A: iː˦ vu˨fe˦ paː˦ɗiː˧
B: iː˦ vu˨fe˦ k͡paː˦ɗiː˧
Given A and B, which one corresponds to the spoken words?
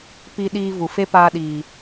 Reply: A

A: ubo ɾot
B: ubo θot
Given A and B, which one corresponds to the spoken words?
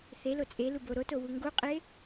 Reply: A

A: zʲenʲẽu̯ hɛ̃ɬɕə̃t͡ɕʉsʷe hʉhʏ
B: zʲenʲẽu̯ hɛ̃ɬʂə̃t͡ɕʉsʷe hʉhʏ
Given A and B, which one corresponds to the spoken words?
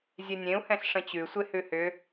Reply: B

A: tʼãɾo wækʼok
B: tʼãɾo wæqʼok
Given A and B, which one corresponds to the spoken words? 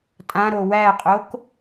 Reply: B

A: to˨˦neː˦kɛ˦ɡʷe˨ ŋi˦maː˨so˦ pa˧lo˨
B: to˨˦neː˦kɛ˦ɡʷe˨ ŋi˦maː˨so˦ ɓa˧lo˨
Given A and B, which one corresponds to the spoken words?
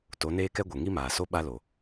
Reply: B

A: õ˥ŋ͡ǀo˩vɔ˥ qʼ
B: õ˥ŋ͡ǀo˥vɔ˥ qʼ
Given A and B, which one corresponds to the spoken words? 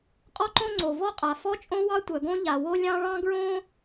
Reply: A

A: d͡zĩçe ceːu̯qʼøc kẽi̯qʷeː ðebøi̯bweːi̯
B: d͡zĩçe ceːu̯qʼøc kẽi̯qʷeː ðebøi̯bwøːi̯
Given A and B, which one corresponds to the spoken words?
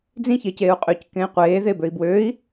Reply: B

